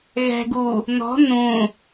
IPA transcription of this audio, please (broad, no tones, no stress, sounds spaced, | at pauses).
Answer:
ɣ ɛ̤ ɡ u | n ɔ̤ n ũ